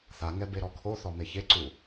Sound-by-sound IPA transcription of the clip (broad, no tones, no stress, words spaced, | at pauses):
θaŋɛ beɾɔkʰoθɔ meçeǀu